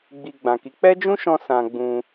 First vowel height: high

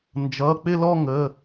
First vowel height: mid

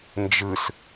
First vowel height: high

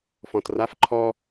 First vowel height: mid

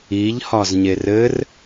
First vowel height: high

